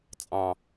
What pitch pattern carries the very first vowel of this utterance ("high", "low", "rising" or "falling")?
low